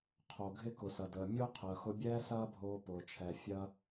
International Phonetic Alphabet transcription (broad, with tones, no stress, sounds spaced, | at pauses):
qʰ o˩ ɡʱ ɪ˧ k ʊ˩ s ɐ˩ d əː˩ mʲ ʊː˥ qʰ əː˩ x ʊ˧ bʲ ɛː˥ s ɐː˥ bʱ oː˧ p ʊː˩ t͡ʃʰ ɛ˩ fʲ ɐ˧